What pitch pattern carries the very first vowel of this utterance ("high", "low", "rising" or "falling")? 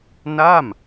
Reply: falling